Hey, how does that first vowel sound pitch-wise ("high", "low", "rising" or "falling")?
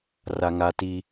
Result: high